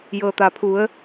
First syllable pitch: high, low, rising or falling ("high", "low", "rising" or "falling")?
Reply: low